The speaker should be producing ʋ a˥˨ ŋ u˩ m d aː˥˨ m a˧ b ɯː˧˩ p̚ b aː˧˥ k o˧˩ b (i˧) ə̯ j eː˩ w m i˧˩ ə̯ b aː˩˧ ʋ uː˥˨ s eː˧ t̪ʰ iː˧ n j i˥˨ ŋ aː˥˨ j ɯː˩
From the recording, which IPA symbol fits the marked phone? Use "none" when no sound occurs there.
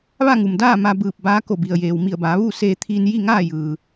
i˩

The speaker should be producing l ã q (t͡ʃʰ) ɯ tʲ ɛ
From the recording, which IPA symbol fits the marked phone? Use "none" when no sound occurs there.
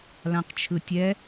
t͡ʃʰ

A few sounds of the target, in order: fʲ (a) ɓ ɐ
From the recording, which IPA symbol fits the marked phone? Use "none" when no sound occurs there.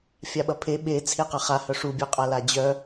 a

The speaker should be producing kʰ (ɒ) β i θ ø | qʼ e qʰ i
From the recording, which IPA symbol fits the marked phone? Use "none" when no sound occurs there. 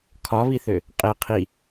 ɒ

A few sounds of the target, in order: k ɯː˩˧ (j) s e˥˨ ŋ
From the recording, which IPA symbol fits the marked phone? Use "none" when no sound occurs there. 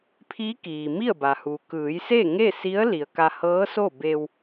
j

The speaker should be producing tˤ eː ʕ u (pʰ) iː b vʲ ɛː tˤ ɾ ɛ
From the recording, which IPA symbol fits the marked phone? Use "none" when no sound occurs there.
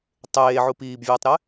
p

